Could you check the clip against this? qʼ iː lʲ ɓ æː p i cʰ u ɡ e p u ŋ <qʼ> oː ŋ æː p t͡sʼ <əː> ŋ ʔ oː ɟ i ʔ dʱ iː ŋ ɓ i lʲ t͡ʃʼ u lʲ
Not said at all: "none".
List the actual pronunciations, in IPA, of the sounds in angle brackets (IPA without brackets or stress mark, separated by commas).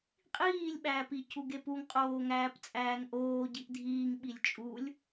qʼ, æː